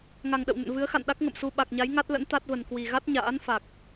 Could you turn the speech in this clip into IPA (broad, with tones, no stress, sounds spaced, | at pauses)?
ŋ a˨˩ ŋ ɗ ə̰˧˨ w n ə̰˧˨ n v ɨ˨˦ ə̯ x a̰˧˨ n ɗ a˦˥ k̚ ŋ ə̰˧˨ m s u˧ ɓ a˨˩ k̚ ɲ a˨˦ j ŋ a˦˥ t̚ l ə̰˧˥ n t̪ a˦˥ t̚ v ə˨˩ n k w i˨˩ ɣ a˦˥ t̚ ɲ a̰ː˧˥ n f a˨˩ k̚